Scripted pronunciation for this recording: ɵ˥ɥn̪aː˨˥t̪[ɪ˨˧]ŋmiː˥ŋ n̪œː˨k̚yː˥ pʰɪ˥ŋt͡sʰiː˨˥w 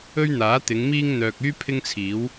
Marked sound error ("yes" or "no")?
no